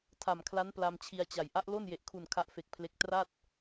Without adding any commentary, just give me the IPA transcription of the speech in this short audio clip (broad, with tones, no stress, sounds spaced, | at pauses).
tʰ a˨˩ m kʰ l a˦˥ n p l a˧ m t͡ɕʰ i˧ a̯ t͡ɕ a˨˩ j ʔ a˦˥ ʔ l o˥˩ n j e˨˩ ʔ kʰ u˨˩ n kʰ a˦˥ ʔ f e˨˩ k̚ pʰ l e˦˥ k̚ t r a˥˩ t̚